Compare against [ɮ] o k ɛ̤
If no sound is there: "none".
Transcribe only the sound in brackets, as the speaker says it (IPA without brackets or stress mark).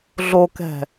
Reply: ɮ